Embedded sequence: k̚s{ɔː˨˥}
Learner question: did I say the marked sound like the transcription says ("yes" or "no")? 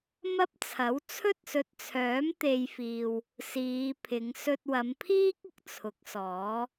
yes